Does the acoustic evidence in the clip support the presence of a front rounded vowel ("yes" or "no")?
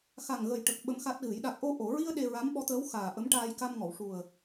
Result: no